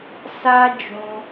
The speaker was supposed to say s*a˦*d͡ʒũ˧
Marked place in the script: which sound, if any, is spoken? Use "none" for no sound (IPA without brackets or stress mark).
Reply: a˦